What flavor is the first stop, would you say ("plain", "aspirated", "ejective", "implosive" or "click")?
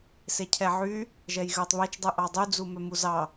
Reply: aspirated